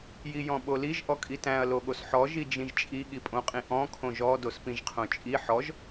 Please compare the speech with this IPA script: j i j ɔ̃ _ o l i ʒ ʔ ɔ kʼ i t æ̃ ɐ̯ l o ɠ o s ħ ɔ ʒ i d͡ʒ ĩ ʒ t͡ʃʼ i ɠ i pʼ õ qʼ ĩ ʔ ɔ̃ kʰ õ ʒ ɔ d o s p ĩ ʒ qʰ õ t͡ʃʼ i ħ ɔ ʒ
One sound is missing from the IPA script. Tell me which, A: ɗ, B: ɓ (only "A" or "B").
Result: B